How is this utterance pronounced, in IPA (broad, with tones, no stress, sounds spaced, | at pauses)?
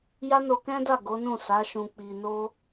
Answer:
j a˦ n o˧ k ɛ̃˦ d a˦˨ ɡ o˨˦ n ũ˦˨ s a˨˦ ʃ ũ˧ k͡p i˧ n o˦